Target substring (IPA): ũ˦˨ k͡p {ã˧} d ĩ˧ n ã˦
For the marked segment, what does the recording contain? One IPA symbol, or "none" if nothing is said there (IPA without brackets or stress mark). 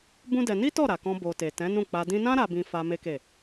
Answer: a˧